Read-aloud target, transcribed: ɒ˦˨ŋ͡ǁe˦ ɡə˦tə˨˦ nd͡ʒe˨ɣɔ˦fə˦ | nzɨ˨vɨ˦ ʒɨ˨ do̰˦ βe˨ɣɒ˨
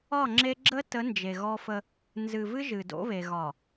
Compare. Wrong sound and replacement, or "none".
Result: ɡ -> ɡ͡ǁ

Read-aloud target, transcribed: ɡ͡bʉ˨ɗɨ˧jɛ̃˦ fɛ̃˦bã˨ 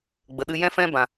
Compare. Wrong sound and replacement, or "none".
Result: ʉ˨ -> ə˨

